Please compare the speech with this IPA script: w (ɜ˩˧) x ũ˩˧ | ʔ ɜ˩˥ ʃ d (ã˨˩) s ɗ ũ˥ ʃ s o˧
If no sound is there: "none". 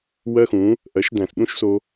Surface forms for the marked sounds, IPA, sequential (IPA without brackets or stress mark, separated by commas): ɜ˧, æ̃˨˩